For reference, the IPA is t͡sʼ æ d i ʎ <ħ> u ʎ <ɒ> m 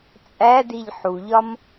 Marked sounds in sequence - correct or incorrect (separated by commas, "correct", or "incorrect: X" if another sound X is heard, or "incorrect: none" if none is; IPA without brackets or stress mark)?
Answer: correct, correct